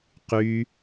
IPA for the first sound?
q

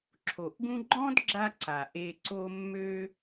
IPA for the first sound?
ǁʰ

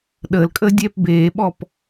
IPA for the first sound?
ɗ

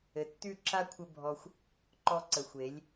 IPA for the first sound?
ɘ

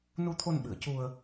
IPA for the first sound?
n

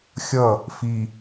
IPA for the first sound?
xʲ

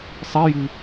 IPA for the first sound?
sˤ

